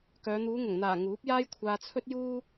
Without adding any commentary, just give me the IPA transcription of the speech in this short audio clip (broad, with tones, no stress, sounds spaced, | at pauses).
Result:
k œː˨˧ n̪ uː˨˧ ŋ ʊ˨˩ ŋ n̪ aː˨˩ ŋ uː˨˥ p̚ j aː˥ j kʷʰ aː˧ t͡sʰ ɵ˥ t̚ j uː˥